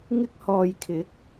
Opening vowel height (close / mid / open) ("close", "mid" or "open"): close